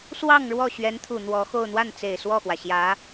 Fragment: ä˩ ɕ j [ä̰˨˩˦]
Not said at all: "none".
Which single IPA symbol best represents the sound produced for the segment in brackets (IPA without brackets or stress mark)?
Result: ä˧˥